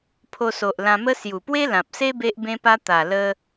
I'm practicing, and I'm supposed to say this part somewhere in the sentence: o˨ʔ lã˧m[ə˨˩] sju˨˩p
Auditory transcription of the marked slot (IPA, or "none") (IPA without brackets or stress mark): ə˦